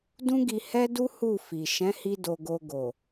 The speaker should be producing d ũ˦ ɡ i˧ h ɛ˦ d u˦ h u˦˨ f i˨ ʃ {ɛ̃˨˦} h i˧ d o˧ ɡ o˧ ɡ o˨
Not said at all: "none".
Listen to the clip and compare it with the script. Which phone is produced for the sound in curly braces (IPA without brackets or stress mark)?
ɛ̃˨˦